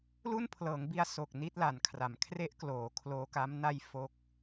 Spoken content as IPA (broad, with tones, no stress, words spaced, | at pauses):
lu˥˩npʰlɤː˩˦ŋ bi˧a̯ so˨˩k̚ ni˦˥t̚la˩˦nkʰra˩˦m kʰre˦˥ʔkloː˩˦ kʰloː˦˥ka˦˥m na˧j fo˥˩k̚